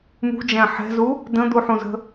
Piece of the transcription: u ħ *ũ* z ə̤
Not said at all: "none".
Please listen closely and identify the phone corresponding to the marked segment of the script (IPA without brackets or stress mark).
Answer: ũ